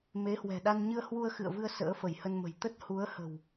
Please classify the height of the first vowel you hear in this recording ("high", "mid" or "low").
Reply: mid